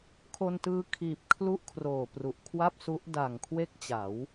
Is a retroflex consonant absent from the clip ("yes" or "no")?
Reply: yes